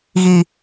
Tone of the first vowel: low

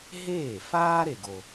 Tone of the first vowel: falling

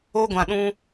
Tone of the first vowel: high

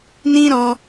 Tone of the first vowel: high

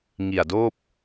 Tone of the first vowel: low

